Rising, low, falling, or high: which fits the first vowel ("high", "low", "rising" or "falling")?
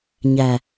low